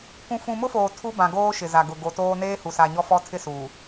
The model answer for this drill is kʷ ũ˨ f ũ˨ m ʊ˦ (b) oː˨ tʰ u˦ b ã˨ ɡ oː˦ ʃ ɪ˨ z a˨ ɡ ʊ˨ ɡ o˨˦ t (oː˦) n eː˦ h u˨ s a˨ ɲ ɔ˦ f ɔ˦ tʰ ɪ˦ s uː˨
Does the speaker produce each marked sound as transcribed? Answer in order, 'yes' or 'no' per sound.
no, yes

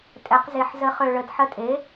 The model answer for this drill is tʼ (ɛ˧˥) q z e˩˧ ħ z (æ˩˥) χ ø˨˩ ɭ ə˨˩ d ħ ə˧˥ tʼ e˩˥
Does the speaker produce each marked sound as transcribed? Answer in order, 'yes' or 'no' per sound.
no, no

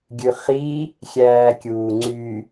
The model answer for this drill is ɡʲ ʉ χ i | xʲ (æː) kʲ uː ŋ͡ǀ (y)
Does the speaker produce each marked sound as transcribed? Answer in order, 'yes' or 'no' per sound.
yes, yes

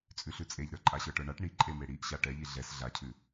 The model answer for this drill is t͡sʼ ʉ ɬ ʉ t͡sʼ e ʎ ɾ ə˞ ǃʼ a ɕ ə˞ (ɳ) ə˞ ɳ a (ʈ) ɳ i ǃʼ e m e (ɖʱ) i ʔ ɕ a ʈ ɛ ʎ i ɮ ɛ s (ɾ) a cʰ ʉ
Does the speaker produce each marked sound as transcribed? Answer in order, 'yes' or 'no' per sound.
no, yes, no, no

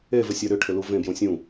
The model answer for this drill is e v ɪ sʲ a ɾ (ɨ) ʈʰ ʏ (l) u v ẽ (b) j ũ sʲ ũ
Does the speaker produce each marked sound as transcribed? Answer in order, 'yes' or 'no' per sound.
no, yes, yes

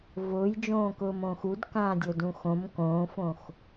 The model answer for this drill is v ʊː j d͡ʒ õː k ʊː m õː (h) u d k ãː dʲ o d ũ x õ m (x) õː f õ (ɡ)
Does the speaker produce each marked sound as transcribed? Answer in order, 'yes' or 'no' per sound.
no, no, no

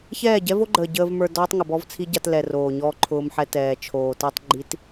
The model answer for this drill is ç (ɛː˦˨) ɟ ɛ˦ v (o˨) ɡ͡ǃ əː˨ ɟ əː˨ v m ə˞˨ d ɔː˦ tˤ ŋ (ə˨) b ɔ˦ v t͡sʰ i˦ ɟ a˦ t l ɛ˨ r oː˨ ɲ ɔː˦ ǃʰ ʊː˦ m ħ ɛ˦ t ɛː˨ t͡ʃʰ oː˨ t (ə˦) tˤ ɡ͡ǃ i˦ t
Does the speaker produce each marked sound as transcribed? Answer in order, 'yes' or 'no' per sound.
yes, no, yes, no

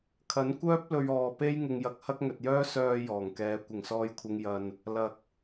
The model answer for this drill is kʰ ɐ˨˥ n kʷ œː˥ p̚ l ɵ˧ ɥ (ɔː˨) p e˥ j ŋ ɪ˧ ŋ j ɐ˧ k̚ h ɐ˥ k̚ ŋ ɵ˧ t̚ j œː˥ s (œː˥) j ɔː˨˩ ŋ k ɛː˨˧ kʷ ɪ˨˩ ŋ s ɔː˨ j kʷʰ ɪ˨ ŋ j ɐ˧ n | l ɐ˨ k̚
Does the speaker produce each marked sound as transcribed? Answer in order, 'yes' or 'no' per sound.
yes, no

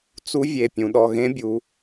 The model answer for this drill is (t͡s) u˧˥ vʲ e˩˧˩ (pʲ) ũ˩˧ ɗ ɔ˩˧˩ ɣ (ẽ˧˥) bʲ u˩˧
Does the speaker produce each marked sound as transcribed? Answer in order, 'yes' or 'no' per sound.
yes, yes, yes

